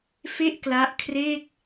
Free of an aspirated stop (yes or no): no